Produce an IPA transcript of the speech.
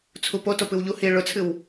t͡sʰ u p o t o p ɨ w ʎ u h i ɭ ʊ t͡sʰ ɨ w

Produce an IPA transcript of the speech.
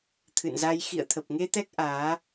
t̪ʰ ɨ̰˧˨ n z a˧ j x ḭ˧˨ ə̯ t̪ʰ ə˨˩ p̚ ŋ e˧ t̪ ɛ˦˥ k̚ ʔ aː˨˦

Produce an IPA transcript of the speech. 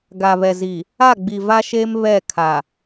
ɡ a˨ β ɛ˨ z i˨ | a˦˨ ɡ͡b i˨ v a˦ ʃ eː˦ m β ɛ˦˨ kʰ a˨

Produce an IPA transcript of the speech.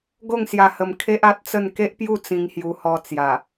ɡ o˥˧ ŋ s j a˧ h ə˧ m kʰ e˦ ʔ a˦ t̚ t͡s ə˥˧ n k e˦ ʔ p j u˥˧ t͡s ĩ˧ ŋ h j u˧ h ɔ˧ t͡s j a˨˩

